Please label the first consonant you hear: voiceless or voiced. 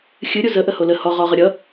voiceless